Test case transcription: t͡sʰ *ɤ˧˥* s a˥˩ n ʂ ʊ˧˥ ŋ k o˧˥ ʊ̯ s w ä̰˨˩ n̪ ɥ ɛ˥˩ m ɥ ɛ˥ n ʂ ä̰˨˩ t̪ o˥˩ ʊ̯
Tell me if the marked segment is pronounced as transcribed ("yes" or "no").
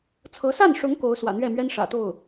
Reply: yes